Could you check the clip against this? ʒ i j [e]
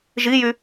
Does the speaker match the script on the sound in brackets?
no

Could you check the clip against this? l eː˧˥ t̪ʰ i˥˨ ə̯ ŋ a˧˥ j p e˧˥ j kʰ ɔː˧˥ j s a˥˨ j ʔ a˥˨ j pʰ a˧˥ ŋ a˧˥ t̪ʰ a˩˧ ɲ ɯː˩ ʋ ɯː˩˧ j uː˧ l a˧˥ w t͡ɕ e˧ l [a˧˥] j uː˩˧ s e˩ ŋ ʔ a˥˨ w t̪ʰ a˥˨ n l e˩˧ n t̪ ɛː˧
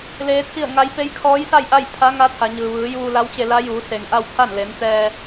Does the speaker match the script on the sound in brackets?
yes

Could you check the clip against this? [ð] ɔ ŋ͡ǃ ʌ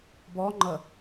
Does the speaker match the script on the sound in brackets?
no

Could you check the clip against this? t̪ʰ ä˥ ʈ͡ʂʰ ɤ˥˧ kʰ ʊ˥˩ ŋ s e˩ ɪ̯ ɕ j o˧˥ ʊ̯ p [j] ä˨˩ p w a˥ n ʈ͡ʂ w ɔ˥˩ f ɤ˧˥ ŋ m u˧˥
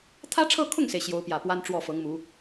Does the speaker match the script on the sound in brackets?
yes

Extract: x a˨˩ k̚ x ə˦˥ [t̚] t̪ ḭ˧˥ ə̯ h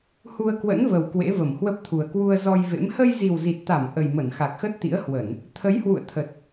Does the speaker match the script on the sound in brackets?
yes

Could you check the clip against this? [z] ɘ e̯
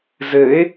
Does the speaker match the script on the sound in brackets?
yes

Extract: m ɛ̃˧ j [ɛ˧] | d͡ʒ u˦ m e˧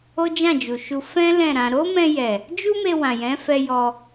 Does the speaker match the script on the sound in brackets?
no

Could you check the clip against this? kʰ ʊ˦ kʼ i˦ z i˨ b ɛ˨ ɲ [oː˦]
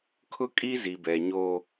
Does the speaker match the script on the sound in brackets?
yes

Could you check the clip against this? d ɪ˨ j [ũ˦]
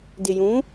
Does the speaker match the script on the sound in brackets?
no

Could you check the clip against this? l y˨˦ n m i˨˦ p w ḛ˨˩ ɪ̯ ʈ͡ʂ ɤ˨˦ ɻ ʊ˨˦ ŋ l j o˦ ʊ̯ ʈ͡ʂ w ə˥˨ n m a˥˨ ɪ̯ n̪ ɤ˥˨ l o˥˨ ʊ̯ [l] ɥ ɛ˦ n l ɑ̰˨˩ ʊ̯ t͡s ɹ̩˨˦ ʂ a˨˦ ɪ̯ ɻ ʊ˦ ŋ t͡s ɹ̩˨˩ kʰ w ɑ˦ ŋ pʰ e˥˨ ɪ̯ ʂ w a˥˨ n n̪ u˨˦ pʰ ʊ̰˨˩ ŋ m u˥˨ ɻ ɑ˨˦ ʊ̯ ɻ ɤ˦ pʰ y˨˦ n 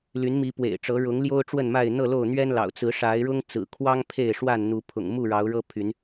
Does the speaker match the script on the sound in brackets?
no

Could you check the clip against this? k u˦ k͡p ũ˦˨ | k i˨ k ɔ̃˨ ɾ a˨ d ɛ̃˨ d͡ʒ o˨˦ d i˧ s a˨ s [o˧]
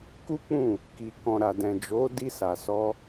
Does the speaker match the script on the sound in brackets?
no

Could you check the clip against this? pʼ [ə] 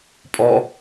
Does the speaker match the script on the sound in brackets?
no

